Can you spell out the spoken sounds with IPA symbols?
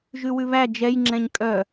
ʒ ʉ w ʉ β æ d͡ʒ ɛ j ŋ͡ǁ ɛ̃ ɲ kʼ œ

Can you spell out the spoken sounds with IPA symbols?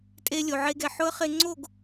tʼ e˧ lʲ o˨ ʕ e˧ ɡ ɛ˨ ħ ʊ˦ ə̯ χ e˧ ŋ͡ǀ o˦˨ ɡ

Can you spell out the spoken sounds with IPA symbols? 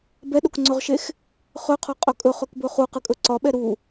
b ɛ ɗ o k ŋ͡ǀ ɵ ʁ ʃ e x | χ ɵ qʰ ɒ qʼ ɵ kʼ ɵ χ ɵ k b ɵ χ u q ɨ kʼ ɵ ǀ ɒ ɓ ɛ ɾ u

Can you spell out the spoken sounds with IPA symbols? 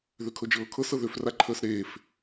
ð ø kʰ ɤ d͡ʒ ɤː kʰ ɤ s ɤ ð ø f r a ǃʰ əː s ɾ eː f

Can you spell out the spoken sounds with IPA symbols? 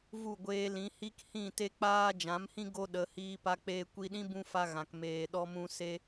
v u˦˨ ɡʷ eː˧ l ĩ˨˦ h i˦ k h ĩ˦˨ t e˦ k͡p aː˦ d͡ʒ ã˨˦ m h ĩ˦ ɡ o˦ ɗ ə˨˦ h iː˧ p a˧ k͡p eː˧ kʷ i˧ ɗ ĩ˦ b ũ˦ f a˧ ɣ ã˨ k m eː˨ ɗ ɔ˧ m ũ˧ s e˧

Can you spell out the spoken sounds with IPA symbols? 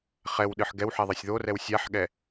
χ ɛ w ɗ ɨ ħ ɡ ɛ w ħ ɛ ðˤ ɛ sʲ ð o r ɛ w sʲ a ħ ɠ ɛ

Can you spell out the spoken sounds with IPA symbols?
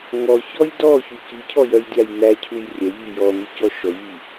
ŋ ɔ ç ɔ j d ɔ ç u c i cʰ ɔ j œ j dʲ a j n̪ æ cʰ u j rʲ œ ʎ i j ɔ n̪ i c ɔ ʃ ɔ ʎ i

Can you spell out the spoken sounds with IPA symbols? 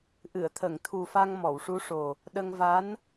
ʔ ɨ˨˩˨ ə̯ t̪ʰ ə˨˩˨ ŋ t̪ʰ u˨˩ f a˧ ŋ m ɔ˨˩˨ w ʂ u˧˥ ʂ o˨˩ | ɗ ə˧ ŋ v a˧˥ n

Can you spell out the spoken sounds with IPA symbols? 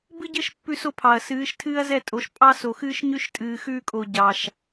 b ɨ˦ ɟ ɘ˦ ʃ pː ʉ˦ s o˦ pʰ ɑ˨ ɐ̯ s ɨː˨˦ ʃ tʰ ɨː˦ ɐ̯ z ɛ˦˨ tʼ o˨˦ ʃ pʼ ɑ˦ s o˨ x ɨː˦ ʃ ɲ ʉ˦ ʃ tʼ ɨː˨ x ʉː˦ kʼ o˨ ɟ ɑ˨ ʃ

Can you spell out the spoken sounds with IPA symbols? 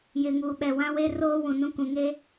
j ɪ˨ ŋ uː˨ ɓ ɛ˨ w ã˦ w e˦ r oː˦ w ũ˨ n ũ˦ k ũ˨ ŋ eː˦

